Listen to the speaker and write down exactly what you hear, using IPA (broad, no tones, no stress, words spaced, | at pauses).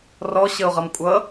rɔɕəʊ̯ʁʌm kʷʼʌ